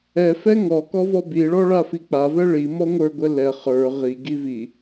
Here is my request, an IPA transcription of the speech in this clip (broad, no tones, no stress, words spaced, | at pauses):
ɛfɛ ŋɔkɔvɔ biɭɔɭafi k͡pavɛ ɭimɔ ŋʷə˞ɡʷɛ lɛ χə˞ ʁiɡi vi